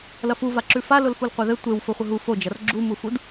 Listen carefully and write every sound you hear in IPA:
l ɐ f u v a ǁ ʉ f a l ʊ l f u l qʷ e ð ɘ tʷ e w f o χʷ ɘ ɦ u f o d͡ʒ ɐ r ɡ͡ǁ u m u f u d

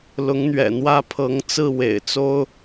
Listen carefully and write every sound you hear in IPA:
l ʊ˧˥ ŋ n̪ ɥ ɛ̰˨˩ n̪ w ä˥˩ pʰ ɤ˧˥ ŋ t͡s ɹ̩˥˩ w ḛ˨˩ ɪ̯ t͡s o˥ ʊ̯

